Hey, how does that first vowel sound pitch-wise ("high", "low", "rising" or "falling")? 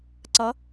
rising